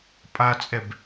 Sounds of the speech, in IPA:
pʼat͡sʼɛb

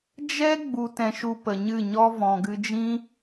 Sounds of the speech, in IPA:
d͡ʒɛ˦ ɡ͡bu˧tɛ̃˧ʃu˧ pə˨ɲɨ˦˨ɲɔ˦ vɔ̃˨ɡɨ˧d͡ʒĩ˦

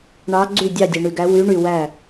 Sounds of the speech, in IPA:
ɳɑ˧˥ɡ͡ǀy˥˨ dʲɑ˥˨dʲe˨ɳy˨ɡæ˧˥ wy˧˥ ɳy˨wæ˥˨

